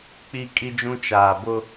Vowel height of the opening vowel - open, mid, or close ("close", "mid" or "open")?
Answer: close